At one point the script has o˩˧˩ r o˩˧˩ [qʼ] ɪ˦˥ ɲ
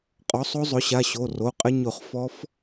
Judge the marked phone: correct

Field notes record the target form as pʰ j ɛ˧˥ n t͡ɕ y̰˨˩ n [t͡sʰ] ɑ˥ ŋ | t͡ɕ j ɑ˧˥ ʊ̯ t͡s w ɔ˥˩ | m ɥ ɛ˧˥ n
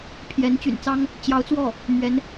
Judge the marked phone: incorrect: t͡s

